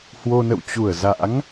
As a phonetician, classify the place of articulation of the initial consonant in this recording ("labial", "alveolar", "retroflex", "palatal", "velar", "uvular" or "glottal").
glottal